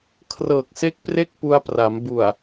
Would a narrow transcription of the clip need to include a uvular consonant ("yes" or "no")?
no